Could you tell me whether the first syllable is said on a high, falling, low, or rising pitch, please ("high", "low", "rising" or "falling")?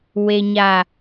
low